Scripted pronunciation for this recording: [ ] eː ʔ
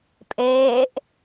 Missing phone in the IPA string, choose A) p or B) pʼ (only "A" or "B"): B